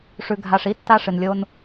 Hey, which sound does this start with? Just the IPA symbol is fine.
ʂ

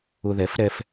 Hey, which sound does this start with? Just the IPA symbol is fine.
ʊ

